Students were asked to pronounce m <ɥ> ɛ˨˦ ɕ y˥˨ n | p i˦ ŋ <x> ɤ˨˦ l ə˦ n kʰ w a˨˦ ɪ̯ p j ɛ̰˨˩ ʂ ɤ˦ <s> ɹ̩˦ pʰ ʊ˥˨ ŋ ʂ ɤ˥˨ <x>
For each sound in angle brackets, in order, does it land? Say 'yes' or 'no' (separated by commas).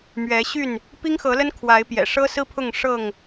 yes, yes, yes, no